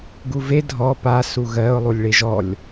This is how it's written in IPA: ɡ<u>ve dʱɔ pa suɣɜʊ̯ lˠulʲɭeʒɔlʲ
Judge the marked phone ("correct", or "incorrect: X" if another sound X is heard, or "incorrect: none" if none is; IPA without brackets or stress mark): correct